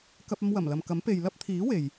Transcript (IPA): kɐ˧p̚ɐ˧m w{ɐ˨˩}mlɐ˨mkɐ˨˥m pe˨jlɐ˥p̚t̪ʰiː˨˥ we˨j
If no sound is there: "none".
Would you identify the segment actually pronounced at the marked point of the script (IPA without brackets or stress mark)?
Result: ɐ˨˩